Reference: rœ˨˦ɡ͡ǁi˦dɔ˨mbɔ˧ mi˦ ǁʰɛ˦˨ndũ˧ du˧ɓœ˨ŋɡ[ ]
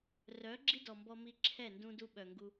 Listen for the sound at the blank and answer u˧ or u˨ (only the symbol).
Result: u˧